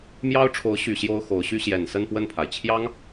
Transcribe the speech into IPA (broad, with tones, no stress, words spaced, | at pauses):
mjɑ˥ʊ̯ʈ͡ʂʰo˧˥ʊ̯ɕy˨˩ ɕjo˥ʊ̯xo˧˥ʊ̯ɕy˥ ɕjɛ˨˩nsə˥˧npwə˥˩npʰa˩ɪ̯ t͡ɕʰjɑ˥ŋ